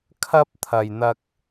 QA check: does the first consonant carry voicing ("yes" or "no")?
no